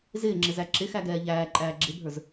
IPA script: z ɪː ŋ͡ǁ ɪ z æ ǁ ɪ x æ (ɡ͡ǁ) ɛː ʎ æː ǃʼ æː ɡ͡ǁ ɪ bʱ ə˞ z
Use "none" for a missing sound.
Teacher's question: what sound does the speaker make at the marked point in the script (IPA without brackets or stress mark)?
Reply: ɡ